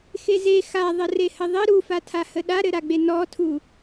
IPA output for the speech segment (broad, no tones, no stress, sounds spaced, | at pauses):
x e z e x a ðˤ ə r e h ə ðˤ ɘ ɾ u f a tʰ a h ə ɗ a ɾ ɘ ɾ a ɡ͡b e n ɔ tʰ u